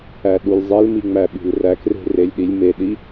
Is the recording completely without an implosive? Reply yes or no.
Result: no